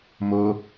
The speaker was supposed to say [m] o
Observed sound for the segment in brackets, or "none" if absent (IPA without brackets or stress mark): m